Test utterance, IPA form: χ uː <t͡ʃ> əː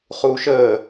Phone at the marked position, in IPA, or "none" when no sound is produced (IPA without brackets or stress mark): ʃ